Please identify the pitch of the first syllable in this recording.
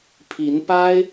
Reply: rising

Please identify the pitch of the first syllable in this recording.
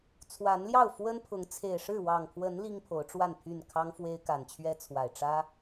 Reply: rising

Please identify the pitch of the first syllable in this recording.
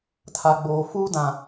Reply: low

